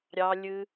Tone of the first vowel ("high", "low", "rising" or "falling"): low